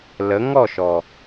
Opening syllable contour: rising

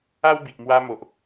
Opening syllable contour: high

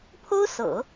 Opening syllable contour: high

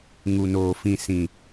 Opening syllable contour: low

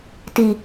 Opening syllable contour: low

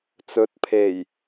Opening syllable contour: rising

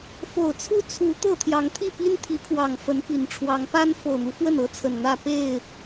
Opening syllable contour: low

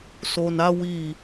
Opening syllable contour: low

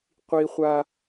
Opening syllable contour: high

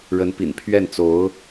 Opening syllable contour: rising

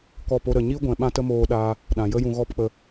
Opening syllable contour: falling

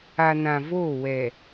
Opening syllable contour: low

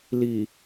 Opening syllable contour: low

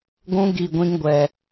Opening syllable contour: high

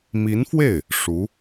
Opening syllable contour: rising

